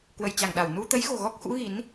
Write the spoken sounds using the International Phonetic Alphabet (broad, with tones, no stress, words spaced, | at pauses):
kwə˧˩jt͡ɕa˧˩ŋɗa˧˩w nu˧t̪ə˨˦jɣo̤˨˩ɣɔ˦˥k̚ xṵ˧˥ɣi˨˦n